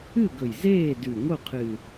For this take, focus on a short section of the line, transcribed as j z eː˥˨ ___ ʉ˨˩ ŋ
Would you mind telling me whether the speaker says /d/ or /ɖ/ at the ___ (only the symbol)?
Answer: d